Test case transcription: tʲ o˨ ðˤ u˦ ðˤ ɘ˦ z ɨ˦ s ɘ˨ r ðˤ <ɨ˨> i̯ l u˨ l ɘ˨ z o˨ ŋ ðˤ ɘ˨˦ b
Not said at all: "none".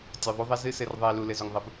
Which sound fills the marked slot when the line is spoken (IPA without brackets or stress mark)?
ɨ˨